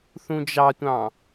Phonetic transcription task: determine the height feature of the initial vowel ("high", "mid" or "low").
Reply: high